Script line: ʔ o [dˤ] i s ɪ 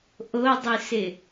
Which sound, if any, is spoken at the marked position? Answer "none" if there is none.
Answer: dˤ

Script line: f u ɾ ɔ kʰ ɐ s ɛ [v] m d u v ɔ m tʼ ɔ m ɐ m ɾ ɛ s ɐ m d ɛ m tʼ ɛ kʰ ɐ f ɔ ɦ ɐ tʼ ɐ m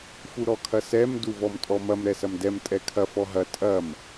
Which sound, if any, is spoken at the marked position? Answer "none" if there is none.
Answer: none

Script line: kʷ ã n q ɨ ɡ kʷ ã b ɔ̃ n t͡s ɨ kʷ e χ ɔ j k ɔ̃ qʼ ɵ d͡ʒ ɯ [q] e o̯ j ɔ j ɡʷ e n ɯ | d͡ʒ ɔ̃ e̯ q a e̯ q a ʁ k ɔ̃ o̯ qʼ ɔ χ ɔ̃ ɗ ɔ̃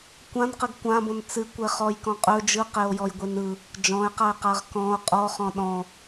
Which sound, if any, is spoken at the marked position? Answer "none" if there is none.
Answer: q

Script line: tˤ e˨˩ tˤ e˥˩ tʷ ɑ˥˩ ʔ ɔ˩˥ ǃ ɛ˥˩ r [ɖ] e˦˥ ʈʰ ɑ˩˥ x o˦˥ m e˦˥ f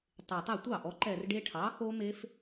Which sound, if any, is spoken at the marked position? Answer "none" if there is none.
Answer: ɖ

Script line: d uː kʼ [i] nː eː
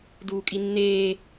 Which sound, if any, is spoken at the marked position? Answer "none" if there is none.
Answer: i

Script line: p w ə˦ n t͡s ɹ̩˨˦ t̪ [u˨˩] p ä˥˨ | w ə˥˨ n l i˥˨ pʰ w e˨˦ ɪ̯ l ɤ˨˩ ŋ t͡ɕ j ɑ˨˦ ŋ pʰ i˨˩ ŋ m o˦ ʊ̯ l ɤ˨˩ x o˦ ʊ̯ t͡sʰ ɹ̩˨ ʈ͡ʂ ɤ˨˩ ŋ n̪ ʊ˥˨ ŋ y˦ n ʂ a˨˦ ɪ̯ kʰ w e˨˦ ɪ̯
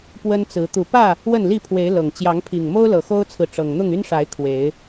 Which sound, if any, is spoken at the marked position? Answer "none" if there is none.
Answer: u˨˩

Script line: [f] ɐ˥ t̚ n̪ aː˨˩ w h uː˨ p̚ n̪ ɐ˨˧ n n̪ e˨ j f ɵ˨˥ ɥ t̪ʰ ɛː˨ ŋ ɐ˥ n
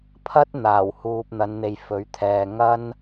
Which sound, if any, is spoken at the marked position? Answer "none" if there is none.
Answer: pʰ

